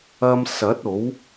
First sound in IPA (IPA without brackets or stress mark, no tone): ɐ